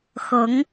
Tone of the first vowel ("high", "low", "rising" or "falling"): rising